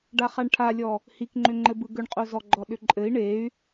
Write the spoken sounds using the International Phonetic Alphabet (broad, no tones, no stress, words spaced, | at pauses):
ɖaχaɳʈʰalʲɔ | hikŋ͡ǃʏŋ͡ǃɘbɯ ɡʏɳqʼozɔɡ͡ǃɔ ɗʏǃʼɘi̯ ɳey̯